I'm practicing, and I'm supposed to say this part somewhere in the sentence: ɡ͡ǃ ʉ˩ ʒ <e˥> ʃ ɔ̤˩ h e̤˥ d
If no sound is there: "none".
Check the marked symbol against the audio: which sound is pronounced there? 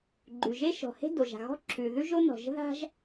e˥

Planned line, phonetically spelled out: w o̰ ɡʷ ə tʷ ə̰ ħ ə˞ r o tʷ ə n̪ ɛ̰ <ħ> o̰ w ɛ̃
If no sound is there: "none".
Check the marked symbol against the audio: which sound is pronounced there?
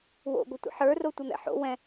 ħ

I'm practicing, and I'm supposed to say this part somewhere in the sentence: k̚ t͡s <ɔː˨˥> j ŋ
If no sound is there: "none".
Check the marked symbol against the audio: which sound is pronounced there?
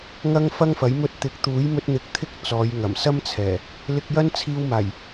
ɔː˨˧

